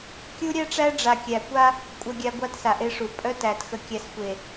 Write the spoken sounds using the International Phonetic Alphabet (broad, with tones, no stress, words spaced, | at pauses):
kʲu˦ɾʲæ˦ʈ͡ʂæ˦ ɖ͡ʐa˨kʲæ˨kʷa˦ | kʷʼœ˨ɡʲa˨ ɡʷa˦tsa˨ʔe˦ʂu˨ pʼœ˦tæ˨t xə˨kʲæ˨sxʷe˨